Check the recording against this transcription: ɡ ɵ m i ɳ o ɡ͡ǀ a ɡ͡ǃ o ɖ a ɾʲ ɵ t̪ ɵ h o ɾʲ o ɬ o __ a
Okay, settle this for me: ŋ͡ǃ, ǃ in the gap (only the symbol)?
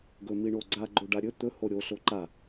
ǃ